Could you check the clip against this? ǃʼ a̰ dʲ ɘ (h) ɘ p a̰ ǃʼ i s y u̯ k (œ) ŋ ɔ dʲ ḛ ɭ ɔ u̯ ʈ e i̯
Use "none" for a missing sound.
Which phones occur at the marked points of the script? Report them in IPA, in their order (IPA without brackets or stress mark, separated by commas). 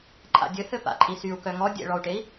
h, œ